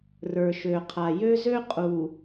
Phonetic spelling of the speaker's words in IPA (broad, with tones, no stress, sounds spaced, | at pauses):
r ə˞˨ ʃ ø˨ qʰ a˨ j ø˦ z ø˦ qʼ u˨